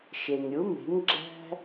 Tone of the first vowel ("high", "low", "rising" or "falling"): low